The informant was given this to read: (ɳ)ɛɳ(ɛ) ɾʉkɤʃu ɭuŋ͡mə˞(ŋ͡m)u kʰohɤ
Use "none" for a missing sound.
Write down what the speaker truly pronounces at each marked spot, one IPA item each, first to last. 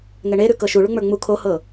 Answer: ŋ, e, ŋ͡m

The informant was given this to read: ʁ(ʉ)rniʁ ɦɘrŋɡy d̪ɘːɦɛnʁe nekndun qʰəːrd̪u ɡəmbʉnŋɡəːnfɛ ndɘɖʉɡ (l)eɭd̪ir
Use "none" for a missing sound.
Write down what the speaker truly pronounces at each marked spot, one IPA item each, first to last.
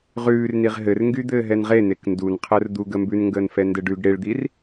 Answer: ʉː, ɽ

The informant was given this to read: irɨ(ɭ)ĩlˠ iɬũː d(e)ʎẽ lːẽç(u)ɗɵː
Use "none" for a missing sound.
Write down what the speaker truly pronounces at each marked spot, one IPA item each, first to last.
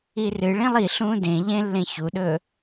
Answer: ɭ, ẽ, u

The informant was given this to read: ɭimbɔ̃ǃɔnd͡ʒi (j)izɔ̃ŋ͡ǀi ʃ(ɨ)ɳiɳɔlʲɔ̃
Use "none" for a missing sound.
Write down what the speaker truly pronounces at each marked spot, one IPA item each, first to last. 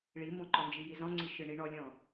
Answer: j, ɨ

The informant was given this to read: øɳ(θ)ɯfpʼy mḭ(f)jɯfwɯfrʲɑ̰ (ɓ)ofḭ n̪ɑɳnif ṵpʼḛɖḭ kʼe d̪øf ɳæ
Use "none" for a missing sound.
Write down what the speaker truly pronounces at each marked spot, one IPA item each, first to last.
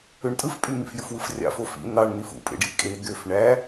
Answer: tʼ, f, f

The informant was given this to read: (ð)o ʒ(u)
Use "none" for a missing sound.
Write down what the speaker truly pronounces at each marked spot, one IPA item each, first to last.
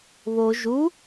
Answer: β, u

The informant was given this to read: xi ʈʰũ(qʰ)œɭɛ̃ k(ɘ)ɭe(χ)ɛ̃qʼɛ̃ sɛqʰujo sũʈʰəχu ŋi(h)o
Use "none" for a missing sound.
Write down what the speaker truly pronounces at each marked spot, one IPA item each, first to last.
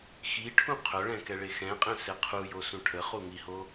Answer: qʰ, ɛ, x, h

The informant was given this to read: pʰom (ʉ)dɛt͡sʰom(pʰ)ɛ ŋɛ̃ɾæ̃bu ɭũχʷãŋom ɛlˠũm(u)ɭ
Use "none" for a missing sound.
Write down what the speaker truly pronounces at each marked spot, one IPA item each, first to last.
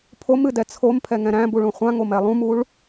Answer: ɨ, pʰ, u

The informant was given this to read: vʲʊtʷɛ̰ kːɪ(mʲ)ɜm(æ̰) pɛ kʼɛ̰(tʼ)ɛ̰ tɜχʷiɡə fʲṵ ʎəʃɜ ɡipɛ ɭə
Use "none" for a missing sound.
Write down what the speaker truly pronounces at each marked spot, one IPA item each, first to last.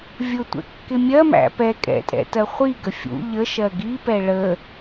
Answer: mʲ, æ̰, tʼ

